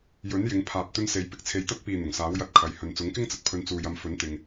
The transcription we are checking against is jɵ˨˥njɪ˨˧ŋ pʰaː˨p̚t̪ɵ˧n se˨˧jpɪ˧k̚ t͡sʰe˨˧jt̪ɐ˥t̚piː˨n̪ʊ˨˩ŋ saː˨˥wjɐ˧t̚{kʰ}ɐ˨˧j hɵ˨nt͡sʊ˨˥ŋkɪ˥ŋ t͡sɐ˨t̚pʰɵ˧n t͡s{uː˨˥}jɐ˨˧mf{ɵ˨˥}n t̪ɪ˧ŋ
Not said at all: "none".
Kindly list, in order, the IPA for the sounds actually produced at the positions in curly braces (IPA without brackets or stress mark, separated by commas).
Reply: kʰ, uː˨, ɵ˨˥